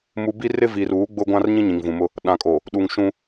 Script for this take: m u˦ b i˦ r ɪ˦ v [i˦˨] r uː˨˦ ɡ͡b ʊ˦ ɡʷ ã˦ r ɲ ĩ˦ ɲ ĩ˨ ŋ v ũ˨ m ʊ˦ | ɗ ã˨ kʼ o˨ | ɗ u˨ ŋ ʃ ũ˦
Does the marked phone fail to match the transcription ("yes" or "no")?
yes